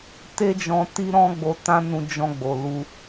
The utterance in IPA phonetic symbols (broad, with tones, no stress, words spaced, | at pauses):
te˦d͡ʒɔ̃˧ ti˦ɾɔ̃˦ɡ͡bo˧tã˦ nũ˧d͡ʒɔ̃˧ɡ͡bo˨lu˧